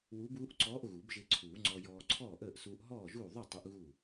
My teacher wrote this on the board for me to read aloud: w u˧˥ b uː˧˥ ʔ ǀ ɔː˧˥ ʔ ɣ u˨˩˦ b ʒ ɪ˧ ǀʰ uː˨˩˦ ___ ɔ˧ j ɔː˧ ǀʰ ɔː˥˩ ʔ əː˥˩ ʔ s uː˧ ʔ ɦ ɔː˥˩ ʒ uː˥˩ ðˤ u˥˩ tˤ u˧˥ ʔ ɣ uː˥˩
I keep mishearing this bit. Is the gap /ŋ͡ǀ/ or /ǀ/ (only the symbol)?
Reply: ŋ͡ǀ